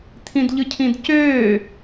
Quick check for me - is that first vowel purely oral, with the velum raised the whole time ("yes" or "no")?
no